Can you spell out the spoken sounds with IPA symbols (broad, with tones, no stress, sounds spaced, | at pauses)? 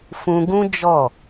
f ũ˧ ɡ ũ˦ d͡ʒ ɔ˦˨